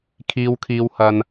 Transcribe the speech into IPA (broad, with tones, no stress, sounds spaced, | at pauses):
kʰ iː˧ w kʰ iː˧ w h ɐ˧ n